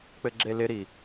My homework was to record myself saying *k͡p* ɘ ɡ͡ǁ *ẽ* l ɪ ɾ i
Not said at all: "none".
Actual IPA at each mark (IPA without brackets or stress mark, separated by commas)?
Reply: k͡p, e